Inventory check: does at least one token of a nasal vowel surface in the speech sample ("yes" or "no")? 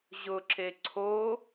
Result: no